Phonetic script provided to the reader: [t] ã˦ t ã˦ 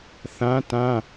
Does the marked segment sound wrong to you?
yes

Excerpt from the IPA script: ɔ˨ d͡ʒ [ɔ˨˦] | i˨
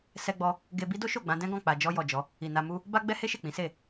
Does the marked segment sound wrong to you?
no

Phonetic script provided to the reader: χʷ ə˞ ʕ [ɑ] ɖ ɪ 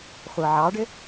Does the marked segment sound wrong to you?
no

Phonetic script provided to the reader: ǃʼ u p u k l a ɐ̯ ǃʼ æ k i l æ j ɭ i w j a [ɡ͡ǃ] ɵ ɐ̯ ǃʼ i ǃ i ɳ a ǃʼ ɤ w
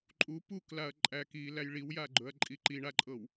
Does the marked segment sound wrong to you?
no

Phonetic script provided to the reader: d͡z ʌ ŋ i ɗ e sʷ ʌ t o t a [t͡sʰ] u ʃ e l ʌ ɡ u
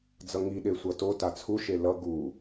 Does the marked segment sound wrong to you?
no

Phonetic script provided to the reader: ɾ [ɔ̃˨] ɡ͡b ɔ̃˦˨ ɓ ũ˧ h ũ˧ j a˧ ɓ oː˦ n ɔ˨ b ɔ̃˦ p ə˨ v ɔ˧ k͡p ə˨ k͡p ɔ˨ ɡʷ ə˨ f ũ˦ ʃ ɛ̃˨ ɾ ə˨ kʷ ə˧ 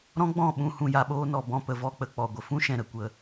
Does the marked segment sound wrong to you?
yes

